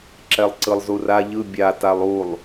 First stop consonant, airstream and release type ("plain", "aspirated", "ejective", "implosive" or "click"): click